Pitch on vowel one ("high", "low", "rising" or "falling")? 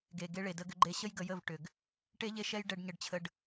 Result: low